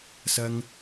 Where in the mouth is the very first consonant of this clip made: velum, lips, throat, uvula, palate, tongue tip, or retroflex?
tongue tip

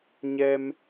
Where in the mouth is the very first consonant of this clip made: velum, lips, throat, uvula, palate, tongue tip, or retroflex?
palate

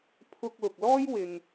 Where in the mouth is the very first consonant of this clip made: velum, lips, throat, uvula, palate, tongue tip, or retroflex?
lips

